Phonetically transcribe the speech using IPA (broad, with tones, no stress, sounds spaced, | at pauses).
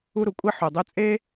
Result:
u˧ ɾ u˩ kʷʼ i˧ ħ u˩ dˤ u˧ t͡sʼ e˥